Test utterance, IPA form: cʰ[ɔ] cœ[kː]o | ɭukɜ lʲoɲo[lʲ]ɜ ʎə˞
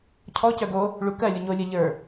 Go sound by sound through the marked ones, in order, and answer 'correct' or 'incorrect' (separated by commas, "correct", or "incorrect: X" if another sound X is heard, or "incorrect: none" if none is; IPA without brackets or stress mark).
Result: correct, incorrect: ɡ, correct